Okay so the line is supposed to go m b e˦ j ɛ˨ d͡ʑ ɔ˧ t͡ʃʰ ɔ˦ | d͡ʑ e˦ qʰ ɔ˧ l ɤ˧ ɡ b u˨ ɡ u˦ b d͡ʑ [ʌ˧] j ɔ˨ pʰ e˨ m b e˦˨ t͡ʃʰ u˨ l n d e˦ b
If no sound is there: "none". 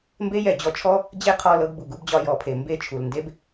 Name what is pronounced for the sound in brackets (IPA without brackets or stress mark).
ɒ˧